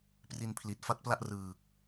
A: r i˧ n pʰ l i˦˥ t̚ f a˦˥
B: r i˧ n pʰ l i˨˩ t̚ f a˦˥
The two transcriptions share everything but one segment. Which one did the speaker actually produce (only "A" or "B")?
B